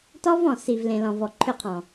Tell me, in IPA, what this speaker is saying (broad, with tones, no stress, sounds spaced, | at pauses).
t ɔ˦ v ɔ̃˨ s i˨ v l ẽ˨ l ɔ̃˨ v ɔ˨ ǃʰ ʏ˦˨ qʰ ɔ̃˨